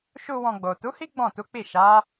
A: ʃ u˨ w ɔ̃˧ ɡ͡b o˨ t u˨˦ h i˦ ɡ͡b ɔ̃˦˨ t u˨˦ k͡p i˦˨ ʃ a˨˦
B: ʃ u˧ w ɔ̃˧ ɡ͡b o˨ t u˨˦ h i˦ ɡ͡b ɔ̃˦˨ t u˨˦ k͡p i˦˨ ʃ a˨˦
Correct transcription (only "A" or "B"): B